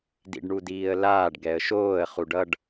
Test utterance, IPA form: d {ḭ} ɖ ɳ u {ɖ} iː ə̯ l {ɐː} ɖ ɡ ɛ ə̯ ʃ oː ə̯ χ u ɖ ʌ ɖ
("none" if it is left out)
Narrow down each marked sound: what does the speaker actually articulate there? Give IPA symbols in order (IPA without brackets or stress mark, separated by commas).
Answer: ḭ, d, aː